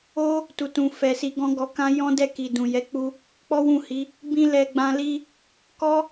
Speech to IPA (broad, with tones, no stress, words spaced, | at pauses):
o˦ | tu˨tũ˨ fɛ˨si˧ɡɔ̃˦ ɡɔ˧kã˦ jɔ̃˦dɛ˦˨ ki˨dũ˨jɛ˨˦k͡pu˧ | k͡pɔ˦wũ˦˨hi˨˦ | bĩ˦lɛ˧ɡ͡bã˧li˦ | kɔ˦